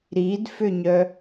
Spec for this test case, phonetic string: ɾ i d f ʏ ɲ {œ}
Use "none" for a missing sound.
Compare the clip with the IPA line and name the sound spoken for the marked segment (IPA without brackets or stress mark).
œ